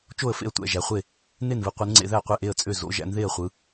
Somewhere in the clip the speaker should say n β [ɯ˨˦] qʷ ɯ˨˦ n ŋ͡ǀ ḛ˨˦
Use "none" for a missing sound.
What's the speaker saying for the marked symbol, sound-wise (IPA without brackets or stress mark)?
ɯ˨˦